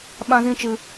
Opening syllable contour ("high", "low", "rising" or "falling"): high